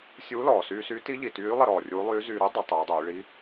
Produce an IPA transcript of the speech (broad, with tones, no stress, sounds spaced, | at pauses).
sʲ uː˧˥ l ɔː˩ s yː˧ s yː˧˥ t i˧˥ ʎ i˩ t yː˧˥ lˠ ə˧ ɾ ɔː˩ rʲ uː˧˥ lˠ yː˧˥ z yː˧ ɾ y˥ dˤ ə˩˧ tˤ uː˩˧ dˤ yː˩˧ ɭ i˧˥